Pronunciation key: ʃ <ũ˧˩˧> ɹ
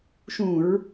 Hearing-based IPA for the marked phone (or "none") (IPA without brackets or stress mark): ũ˧˩˧